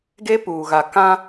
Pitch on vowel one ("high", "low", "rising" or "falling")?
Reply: high